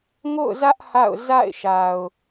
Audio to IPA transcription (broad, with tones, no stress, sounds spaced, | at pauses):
ŋ o̰˦˨ ʊ̯ z ä˦ ʔ h a̰˦˨ ʊ̯ z a̰˦˨ ɪ̯ ʃ a˨ ʊ̯